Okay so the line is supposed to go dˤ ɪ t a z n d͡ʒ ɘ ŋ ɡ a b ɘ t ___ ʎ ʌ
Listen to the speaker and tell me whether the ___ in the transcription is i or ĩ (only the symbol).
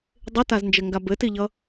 i